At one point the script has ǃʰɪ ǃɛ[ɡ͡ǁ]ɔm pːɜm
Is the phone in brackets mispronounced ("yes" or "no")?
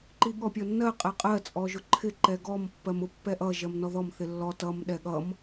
yes